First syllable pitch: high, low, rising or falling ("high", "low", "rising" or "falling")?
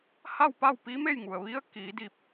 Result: falling